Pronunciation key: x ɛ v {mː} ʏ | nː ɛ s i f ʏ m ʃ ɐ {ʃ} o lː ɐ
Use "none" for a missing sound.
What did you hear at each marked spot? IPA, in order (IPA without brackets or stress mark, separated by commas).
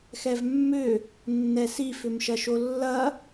mː, ʃ